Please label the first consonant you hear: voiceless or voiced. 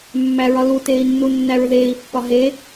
voiced